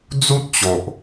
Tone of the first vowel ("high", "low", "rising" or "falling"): high